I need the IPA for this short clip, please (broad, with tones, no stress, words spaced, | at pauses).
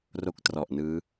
ro˥˩k̚trɔ˨˩ʔ nɯː˦˥